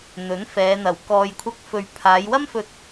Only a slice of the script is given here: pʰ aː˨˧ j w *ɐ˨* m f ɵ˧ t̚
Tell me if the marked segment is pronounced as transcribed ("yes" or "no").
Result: no